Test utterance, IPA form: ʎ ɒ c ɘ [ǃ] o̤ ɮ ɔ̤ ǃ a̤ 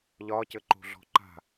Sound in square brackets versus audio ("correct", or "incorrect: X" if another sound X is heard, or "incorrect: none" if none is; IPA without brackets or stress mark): correct